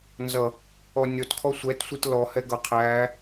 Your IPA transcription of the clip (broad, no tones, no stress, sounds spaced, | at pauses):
n z ʌ | ɔ nʲ ɔ t kʰ ɔ sʷ ɛ t sʷ i t l ɔ h ɛ ɡ ʌ qʰ æ